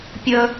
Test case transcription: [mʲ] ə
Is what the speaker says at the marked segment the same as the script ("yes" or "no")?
no